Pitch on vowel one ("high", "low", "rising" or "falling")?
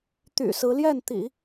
low